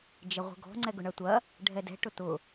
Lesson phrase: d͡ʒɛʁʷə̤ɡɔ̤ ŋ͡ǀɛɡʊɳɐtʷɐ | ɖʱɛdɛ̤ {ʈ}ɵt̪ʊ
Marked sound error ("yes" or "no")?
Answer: no